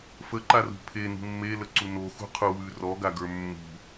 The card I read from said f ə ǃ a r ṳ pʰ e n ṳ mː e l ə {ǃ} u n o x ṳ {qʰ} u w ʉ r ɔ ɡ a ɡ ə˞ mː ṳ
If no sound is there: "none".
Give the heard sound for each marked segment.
ǀ, qʰ

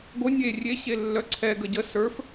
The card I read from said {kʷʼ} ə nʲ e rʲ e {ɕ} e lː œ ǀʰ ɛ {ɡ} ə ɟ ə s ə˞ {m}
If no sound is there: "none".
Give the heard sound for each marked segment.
ɡʷ, ɕ, ɡ, f

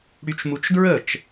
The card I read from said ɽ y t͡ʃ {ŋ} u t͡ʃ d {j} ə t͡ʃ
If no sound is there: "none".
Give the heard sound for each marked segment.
m, ɹ

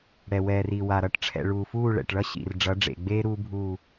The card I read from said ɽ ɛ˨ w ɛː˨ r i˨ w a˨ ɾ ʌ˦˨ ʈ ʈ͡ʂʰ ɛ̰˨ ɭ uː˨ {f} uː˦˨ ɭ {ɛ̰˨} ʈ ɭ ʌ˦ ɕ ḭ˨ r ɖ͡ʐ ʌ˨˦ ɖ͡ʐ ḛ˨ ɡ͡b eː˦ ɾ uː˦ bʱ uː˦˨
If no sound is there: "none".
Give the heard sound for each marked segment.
f, ɛ̰˨

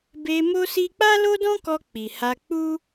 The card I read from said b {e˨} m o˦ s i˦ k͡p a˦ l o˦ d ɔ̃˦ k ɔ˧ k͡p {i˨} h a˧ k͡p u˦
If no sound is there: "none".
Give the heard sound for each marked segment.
e˧, i˨

